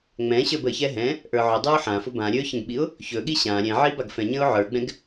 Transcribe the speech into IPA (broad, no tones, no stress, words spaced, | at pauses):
ŋ͡mɛ̃ ɕə˞bəçɛ ɦɛ̃ | ʔə˞ʕʊdˤə˞ʊ̯ ħãfʊ bã ɾʲɵ çə̃ɡɓiʊ̯ | çɵɠi ɕã ɾʲɛ̃ʕi baɡfɛ̃ɲə̃ʊ̯ ʕə˞ɡ͡bɛ̃ɡ